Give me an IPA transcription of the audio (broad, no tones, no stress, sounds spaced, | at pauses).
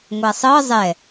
ŋʷ a sˤ ɤ zˤ ɛ